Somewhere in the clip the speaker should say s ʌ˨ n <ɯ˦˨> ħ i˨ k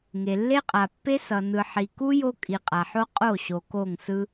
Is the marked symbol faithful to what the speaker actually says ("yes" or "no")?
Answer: no